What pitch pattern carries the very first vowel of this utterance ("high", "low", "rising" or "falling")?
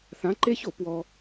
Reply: rising